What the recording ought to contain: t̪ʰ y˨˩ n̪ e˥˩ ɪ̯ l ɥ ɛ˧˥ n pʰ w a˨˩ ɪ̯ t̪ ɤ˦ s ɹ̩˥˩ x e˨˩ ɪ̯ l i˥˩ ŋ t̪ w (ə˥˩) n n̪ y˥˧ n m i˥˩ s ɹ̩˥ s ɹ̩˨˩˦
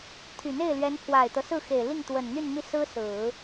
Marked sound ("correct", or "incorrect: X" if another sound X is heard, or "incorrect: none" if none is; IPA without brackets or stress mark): incorrect: ə˨˩